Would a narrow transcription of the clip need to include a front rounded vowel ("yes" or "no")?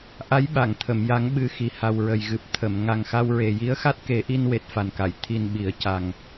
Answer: no